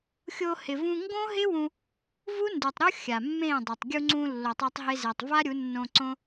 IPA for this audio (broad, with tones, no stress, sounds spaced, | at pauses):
xʲ o˧ h ɪ˨ v ũ˧ ŋ ɡ õ˦ ɦ ɪ˦ w ũ˧ | v u˦ n d u˨ tˤ ɾ o˦ xʲ a˨ mː ẽ˦˨ dˤ ʊ˨ tˤ ɡʲ u˧ ŋ͡ǀ ũ˧ lː o˧ tˤ o˦ tˤ ɦ e˦ z e˧ tˤ v a˦ ɾʲ u˨˦ nː õ˧ ǀ õ˦